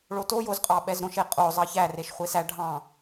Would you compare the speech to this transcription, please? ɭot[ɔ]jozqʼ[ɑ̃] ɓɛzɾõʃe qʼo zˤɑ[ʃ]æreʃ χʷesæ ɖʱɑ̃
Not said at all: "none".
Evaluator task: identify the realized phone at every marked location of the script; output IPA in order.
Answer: o, ɑ, ç

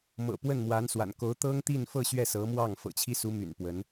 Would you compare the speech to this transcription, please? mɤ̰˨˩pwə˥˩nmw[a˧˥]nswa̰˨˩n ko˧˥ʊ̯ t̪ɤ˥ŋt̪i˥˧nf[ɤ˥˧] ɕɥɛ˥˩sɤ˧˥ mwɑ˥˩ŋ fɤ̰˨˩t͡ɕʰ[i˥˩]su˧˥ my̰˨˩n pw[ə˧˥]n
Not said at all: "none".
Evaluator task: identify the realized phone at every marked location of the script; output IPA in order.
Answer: a˧˥, ɤ˥˧, i˥, ə˧˥

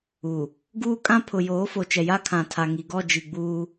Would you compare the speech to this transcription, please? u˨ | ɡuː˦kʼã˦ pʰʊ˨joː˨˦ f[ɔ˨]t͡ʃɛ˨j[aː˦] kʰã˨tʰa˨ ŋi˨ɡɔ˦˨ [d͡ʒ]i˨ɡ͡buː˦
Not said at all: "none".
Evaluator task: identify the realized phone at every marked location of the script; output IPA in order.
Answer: o˨, a˦, d͡ʒ

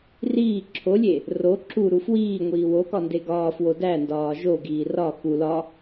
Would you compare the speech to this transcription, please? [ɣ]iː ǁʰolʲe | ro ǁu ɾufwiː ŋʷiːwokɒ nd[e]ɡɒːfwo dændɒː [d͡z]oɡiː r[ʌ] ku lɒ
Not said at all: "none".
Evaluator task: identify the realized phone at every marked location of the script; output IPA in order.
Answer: r, e, ʒ, ɒ

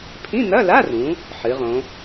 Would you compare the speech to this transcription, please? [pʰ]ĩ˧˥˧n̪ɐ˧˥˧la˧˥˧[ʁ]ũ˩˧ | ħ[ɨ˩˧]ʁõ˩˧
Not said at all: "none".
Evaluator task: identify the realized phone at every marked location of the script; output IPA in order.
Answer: pʰ, r, ɨ˩˧

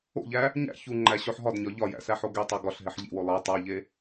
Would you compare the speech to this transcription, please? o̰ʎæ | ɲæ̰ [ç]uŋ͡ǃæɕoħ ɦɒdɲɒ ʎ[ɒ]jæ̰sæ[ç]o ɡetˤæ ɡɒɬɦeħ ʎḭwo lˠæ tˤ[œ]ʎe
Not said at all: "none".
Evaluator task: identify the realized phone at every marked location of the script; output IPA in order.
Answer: ç, ɒ, ħ, æ

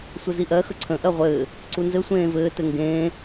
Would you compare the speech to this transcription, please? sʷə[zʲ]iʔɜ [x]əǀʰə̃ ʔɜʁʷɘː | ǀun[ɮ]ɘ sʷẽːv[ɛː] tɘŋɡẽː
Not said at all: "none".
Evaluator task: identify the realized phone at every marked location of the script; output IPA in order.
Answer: z, x, z, ɘː

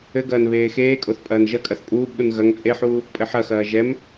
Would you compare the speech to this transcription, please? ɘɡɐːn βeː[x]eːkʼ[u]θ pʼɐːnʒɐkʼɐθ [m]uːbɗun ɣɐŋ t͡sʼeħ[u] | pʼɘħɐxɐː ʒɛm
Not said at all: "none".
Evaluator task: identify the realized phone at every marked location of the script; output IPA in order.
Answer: x, o, pʼ, uː

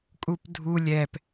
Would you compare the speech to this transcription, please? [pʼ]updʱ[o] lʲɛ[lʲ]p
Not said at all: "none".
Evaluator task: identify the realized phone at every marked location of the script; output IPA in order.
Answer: kʼ, u, none

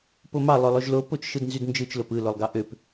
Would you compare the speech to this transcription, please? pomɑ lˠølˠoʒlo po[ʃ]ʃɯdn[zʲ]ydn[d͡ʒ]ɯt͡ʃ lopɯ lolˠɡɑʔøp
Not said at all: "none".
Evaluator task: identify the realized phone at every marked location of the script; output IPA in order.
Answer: t͡ʃ, z, d͡ʒ

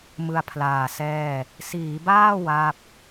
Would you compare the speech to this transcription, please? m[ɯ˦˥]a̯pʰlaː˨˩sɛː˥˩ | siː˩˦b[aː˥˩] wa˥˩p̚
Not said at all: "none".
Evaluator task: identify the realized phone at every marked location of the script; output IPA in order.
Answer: ɯ˧, aː˥˩

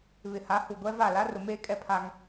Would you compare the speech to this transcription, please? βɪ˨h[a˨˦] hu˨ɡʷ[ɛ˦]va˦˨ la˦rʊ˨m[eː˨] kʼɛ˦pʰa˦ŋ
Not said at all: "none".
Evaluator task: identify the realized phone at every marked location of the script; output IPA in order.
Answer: a˨˦, ɛ˦, eː˦

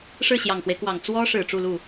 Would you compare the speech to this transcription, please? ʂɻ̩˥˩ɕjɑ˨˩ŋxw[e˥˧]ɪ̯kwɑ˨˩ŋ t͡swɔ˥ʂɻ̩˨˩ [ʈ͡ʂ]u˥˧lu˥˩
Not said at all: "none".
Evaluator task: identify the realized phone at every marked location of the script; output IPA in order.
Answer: e˦, ʈ͡ʂ

